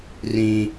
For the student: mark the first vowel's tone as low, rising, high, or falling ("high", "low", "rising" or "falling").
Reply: high